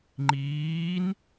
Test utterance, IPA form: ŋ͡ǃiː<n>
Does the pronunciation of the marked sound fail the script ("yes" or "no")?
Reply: no